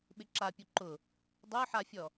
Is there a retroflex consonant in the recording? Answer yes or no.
no